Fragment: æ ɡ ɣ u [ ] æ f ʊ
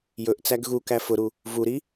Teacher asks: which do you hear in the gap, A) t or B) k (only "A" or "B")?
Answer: B